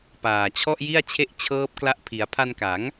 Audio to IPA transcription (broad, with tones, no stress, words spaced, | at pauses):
paː˨˩t͡ɕʰɔ˥˩ʔji˥˩a̯ t͡ɕʰe˥˩ʔt͡ɕʰɤː˦˥p̚kla˦˥ʔ pʰi˩˦a̯ pʰa˧nka˩˦ŋ